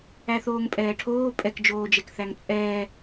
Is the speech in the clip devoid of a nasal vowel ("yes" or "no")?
yes